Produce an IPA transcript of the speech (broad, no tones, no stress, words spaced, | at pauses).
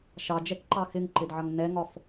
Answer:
ʃɑd͡ʒɛkǃɑ xɪŋǃɪdʕʌŋ nɛŋɒf